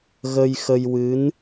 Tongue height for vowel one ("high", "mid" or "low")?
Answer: mid